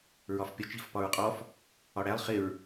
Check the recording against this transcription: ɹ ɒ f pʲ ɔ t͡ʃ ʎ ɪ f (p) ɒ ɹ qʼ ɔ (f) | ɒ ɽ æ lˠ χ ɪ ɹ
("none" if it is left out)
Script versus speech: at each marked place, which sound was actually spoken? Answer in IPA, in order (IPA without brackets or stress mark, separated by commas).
p, f